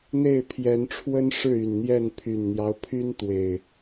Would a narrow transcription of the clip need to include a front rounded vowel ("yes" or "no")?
yes